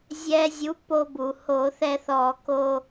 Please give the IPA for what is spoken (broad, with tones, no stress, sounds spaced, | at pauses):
zʲ ɛ˧ zʲ u˨˥ p o˧ b u˩ h o˧˩˧ θ ɛ˧ θ ɔ˧˩˧ k o˧